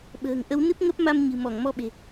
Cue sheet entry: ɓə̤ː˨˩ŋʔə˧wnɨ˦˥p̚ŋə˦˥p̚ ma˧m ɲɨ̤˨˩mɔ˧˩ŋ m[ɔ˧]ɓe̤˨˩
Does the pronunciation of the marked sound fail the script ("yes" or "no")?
no